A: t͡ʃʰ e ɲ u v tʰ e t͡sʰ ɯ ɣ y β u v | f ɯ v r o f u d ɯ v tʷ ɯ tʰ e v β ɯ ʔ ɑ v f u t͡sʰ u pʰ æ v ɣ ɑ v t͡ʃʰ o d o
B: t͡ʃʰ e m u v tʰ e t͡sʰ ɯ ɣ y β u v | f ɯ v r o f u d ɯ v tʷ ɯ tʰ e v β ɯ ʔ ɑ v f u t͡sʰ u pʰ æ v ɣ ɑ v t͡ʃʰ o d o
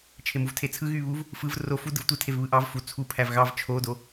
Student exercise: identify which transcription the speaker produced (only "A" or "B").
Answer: B